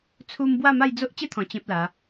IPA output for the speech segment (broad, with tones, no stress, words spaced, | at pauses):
t͡sʰu˧m bwa˥˧ma˥˧jd͡zo˦ʔ t͡ɕe˦t̪ʰɔ̃˨˩ t͡ɕẽ˦p̚la˨˦